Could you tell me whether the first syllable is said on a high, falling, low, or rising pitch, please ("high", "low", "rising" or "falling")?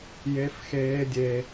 high